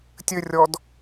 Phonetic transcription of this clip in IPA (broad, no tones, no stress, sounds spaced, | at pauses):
tʲ ɘ rʲ ɔ d